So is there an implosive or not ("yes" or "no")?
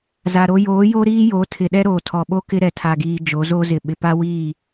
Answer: yes